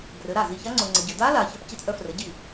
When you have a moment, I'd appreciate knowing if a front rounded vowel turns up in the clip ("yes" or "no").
yes